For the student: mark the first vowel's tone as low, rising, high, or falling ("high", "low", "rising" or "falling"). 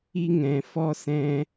high